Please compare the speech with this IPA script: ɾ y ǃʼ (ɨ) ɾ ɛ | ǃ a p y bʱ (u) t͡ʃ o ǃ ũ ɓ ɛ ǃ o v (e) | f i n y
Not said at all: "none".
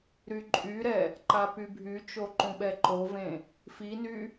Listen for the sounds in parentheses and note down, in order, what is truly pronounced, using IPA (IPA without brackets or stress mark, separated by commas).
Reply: y, y, ẽ